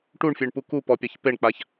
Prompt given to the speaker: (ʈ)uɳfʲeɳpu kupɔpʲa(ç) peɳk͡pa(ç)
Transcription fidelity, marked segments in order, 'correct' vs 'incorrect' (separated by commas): correct, correct, correct